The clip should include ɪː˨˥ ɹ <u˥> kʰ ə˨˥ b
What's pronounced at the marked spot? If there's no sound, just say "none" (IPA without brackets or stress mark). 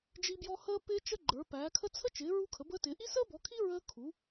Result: u˥